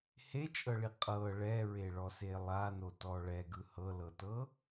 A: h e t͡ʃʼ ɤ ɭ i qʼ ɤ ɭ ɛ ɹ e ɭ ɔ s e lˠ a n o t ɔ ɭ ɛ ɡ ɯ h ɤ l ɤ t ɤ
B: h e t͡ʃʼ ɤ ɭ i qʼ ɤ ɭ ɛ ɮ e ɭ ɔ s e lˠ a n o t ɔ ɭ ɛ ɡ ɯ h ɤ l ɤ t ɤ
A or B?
A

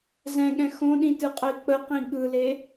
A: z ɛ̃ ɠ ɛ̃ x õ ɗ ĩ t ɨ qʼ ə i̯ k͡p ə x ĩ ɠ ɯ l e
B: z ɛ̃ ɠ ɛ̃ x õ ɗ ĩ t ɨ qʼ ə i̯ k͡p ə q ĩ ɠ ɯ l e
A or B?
B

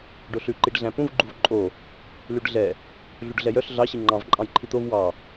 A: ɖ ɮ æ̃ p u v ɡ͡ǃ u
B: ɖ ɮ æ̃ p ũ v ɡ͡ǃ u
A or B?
B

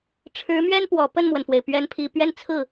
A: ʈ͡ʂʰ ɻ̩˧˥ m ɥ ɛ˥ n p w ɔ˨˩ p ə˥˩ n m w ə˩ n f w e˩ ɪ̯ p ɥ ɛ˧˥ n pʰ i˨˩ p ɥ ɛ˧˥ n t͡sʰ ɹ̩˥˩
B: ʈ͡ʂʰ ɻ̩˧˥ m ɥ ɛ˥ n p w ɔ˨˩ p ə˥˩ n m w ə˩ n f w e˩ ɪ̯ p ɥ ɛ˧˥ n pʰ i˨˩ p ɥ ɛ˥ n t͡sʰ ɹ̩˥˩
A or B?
B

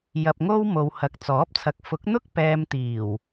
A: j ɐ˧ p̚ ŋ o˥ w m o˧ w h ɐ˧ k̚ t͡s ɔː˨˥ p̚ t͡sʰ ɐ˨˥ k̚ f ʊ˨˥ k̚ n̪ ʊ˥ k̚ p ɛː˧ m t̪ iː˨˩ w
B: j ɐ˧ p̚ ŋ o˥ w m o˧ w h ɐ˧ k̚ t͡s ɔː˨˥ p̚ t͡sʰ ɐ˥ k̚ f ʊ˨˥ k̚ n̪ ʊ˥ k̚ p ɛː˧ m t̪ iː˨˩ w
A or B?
A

